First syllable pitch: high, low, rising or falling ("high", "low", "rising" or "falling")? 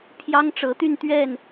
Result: high